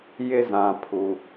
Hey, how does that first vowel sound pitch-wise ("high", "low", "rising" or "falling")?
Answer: high